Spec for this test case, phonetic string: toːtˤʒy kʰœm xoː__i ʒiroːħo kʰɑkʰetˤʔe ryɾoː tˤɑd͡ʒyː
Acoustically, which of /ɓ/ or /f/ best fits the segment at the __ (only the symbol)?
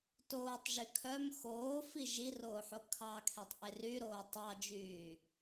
f